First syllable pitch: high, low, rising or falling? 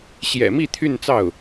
low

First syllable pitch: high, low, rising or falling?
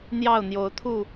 falling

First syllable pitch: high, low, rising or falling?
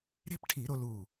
high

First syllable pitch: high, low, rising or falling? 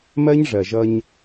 high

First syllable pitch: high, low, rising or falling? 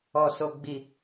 low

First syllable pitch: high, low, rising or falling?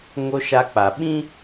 high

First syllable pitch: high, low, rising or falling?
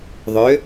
rising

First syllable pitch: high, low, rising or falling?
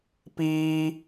high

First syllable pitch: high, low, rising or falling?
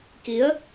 rising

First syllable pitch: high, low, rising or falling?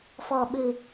low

